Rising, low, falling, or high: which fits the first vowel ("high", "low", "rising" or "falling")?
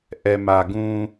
low